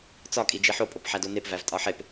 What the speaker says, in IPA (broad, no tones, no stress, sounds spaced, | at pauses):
t͡s ɒ kʼ i d͡ʒ i ħ o pʼ o p ħ æ d o n e p v æ v tʼ ɒ ħ e p